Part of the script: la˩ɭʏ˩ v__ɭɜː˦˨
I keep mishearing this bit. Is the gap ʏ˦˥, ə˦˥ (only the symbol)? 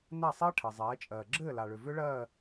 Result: ʏ˦˥